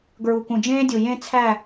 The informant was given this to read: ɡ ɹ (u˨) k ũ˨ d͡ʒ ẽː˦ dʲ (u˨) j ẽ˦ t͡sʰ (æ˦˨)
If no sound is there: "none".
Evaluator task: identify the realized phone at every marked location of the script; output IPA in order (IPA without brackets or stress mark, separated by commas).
u˨, u˨, æ˦˨